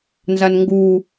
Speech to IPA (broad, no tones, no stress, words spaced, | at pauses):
nzanŋɡu